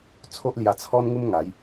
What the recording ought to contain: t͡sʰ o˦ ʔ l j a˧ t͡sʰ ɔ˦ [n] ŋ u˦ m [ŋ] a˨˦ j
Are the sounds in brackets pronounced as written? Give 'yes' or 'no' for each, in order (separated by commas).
yes, yes